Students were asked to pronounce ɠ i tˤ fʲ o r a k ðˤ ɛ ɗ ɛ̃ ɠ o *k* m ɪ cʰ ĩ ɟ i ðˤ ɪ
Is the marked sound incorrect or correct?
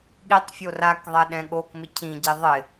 correct